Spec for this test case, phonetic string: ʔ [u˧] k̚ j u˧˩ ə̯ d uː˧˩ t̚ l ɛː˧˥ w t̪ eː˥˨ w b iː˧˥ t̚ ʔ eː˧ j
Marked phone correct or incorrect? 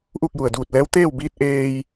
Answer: incorrect